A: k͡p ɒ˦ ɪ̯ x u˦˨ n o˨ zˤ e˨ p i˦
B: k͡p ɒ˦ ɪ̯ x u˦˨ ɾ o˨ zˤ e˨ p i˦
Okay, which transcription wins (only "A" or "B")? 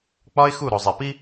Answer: B